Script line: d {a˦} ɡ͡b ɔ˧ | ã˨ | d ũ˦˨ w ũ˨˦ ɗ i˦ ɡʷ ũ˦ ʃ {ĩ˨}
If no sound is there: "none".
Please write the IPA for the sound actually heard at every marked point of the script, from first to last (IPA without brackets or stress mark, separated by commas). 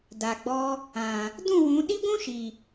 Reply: a˨, i˨